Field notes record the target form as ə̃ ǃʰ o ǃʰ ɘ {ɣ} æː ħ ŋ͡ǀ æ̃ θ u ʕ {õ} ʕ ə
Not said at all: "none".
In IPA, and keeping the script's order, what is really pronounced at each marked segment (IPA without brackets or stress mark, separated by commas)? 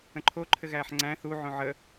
ɣ, õ